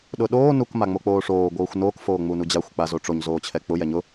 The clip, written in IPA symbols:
ɗ ʊ ɗ oː n u k m a ŋ͡m o k͡p oː ʂ oː ɡʷ ɤː xʷ n oː k f oː ŋ͡m u n u d͡ʑ a xʷ k͡p a z o ʈ͡ʂ o ɲ z oː t͡ɕʰ ɛ k͡p ʊ j ɛ ɲ ʊ

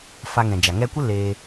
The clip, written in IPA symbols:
f a˧ ŋ ɛ̃˨ d͡ʒ a˨ ŋ ɛ˦ kʷ ə˦ l eː˧

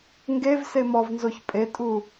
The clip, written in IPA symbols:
ŋ ɡ e v s e m ɔ v n z o ç pʼ e tʼ u

